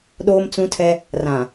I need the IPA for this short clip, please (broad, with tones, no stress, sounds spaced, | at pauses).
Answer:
ɗ oː˦ m t͡s ũ˦ tʰ ɛ˦ | r ã˨